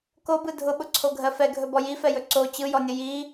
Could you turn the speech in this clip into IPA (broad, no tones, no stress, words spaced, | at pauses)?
kobɯ dʱʊɓʊǀʰoɡʱɜ fɛɡʱɵbɔ jifɛjɵ ǀo t͡ɕɯjɔnʲə ji